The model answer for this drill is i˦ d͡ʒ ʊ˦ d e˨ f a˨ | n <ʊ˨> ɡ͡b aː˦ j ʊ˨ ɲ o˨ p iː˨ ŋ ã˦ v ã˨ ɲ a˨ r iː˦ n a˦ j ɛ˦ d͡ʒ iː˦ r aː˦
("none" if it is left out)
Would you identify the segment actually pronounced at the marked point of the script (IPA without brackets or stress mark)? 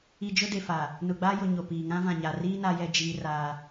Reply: ʊ˨